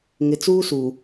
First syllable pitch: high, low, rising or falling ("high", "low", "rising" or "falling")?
low